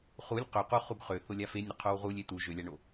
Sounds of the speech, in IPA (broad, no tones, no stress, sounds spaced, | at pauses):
χ u lʲ q ø q u χ u ɡ χ ø θ o lʲ a f e nʲ ɾ ə qʰ o w ʁ u lʲ e t̪ u ʒ ø lʲ a ɳ o